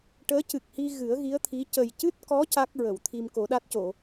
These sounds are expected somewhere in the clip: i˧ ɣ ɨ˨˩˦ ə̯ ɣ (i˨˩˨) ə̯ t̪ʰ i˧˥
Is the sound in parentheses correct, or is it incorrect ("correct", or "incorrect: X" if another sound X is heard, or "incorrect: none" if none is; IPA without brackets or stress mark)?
incorrect: i˧˥